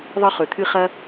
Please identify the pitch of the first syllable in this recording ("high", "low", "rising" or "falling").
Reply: high